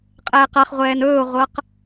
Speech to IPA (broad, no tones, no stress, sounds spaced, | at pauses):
qʼ ɛː q a χ ʁʷ ɛː n ɵː ʊ̯ ʁʷ ɤ q